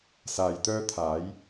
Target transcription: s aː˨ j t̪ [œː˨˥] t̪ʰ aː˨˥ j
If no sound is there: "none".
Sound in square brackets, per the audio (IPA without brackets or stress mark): œː˥